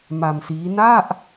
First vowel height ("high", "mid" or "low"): low